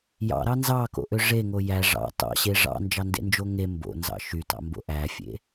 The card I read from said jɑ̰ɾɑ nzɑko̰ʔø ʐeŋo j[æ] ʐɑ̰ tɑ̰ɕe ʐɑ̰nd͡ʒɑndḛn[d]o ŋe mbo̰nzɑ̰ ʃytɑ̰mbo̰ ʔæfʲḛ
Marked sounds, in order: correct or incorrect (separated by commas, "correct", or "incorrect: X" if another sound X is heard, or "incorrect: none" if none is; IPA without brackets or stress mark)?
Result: correct, incorrect: d͡ʒ